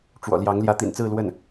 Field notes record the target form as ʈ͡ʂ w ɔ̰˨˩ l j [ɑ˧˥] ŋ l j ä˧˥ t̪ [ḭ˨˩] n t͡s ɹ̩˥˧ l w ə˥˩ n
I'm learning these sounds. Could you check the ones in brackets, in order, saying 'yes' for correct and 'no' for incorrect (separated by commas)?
yes, yes